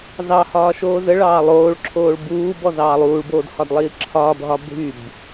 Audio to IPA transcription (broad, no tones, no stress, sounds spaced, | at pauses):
z ɑ h ɒː ʃ oː z ə ɭ ɑː lˠ oː ɭ ǁʰ oː ɭ b uː b ɔ z ɑː lˠ uː ɭ b oː d h ɒ d lˠ iː ǁʰ ɒː b ɦ ɒ bʱ y b